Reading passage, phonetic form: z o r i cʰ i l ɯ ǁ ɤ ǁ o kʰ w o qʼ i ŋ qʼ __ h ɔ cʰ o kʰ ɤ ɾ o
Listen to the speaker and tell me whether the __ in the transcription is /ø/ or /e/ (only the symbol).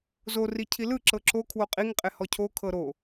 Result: e